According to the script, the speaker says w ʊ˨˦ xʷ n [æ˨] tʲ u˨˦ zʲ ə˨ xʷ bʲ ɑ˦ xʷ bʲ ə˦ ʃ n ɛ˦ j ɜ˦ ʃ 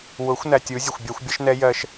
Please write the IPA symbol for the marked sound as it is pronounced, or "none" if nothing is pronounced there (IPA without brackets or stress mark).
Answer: æ˨